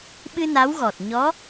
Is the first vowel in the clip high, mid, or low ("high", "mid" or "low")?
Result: high